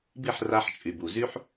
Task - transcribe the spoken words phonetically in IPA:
b i˥˩ ħ r a˧ ħ t͡ʃʼ y˩ b u˩ z y˥ ħ

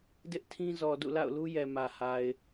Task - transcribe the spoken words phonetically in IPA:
d ɪ˦ ʔ tʰ ĩ˦ z ɔ˨ d ṵ˦˨ l a̰˦˨ ʊ̯ l u˦ j ɛ˨ m ä˨ h a˨ ɪ̯

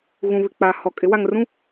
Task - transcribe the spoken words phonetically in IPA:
ɣ ũ˨ β ɪ˨ k͡p a˨ h ɔ˨ kʼ ɪ˨˦ w a˨ ŋ r ũ˦

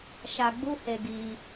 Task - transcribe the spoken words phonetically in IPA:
ʃ a˧ ɡ͡b u˦ h e˧ ɡ i˧

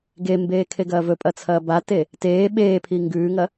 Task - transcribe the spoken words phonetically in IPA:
ɡ e m b eː kʰ e ɡ ɐː v ɵ pʼ ɐ t͡sʰ ɐː b a t e | t eː ɓ eː pʰ i ŋ ɡ ʉː ŋ ɐ

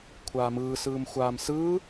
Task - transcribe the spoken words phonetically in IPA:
kʷʰ aː m ɯː s ɯː m xʷ aː m s ɯː

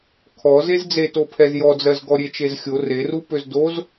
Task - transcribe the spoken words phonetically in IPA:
kʰ ɔ z e z d͡z e t o pʰ ɛ z j ɔ d͡z ɜ z ɡ ɔ ɾʲ e t͡ʃ e z xʲ o r e r u p ø z d o z

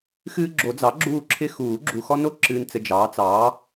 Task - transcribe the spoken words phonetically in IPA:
x ɨː˦ ɡ͡ǁ o˨˩˦ d͡z ɑ˩˥ ɡ͡ǁ uː˦˨ ǁʰ ɪ˦ x uː˨˩˦ ɡ͡ǁ u˨ x ɔ˦ n o˦˨ ǁ ɨː˨ n t͡s ɘ˨ d͡ʒ ɑː˩˥ t͡s ɑː˩˥

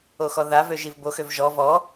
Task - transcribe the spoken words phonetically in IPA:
o x ɔ ð a v ø ʒ i v b o x ø v ʒ ɔ v ɔ

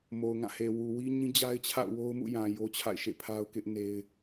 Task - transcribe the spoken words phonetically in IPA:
m o˨ ʊ̯ ŋ ã˦˨ h e˨ w u˨ w i˦ ɲ ĩ˦ d͡ʑ a˦ ɪ̯ t͡ɕʰ a̰˦˨ ʊ̯ w o˦ ʊ̯ m ṵ˦˨ j ã˨ j o˦ t͡ɕʰ a̰˦˨ ɪ̯ ʃ ḛ˦˨ pʰ a˦ ʊ̯ k ɪ˦ ʔ n e˦ ɪ̯

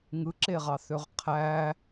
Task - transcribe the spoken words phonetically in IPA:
ŋ ɯ ǁ e ʁ ɑ θ ø ʁ qʰ æ

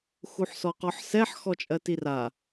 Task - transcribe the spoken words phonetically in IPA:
x u ħ s ɔ q ɔ ħ s ɛ ħ x ɔ t͡ʃʼ ɜ t i r a

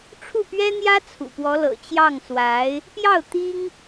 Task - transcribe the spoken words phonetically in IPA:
ʈ͡ʂʰ u˥˩ p ɥ ɛ˥ n̪ j ä˥ t͡sʰ ṵ˨˩ p w ɔ˧˥ l ɤ̰˨˩ t͡ɕ j ɑ˥˩ ŋ s w a˧˥ ɪ̯ | p j ɑ˥˩ ʊ̯ t̪ i˥ ŋ

